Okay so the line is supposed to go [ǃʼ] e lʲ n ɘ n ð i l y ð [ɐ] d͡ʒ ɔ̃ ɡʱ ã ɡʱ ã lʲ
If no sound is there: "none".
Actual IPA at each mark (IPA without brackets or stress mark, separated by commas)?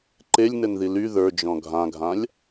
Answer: ǃ, ə˞